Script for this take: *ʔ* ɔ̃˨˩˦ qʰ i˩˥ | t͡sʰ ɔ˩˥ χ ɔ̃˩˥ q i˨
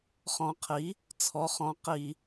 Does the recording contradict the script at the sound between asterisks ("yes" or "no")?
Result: yes